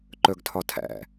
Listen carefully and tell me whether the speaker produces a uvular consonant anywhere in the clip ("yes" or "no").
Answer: no